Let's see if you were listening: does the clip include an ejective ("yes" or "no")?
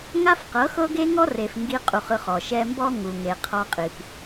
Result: yes